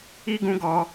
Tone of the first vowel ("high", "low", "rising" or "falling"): high